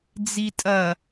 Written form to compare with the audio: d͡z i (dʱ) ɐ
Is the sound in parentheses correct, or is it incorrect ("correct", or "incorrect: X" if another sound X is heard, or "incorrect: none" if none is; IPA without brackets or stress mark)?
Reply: incorrect: tʼ